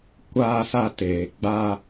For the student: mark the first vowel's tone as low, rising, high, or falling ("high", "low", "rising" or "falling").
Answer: high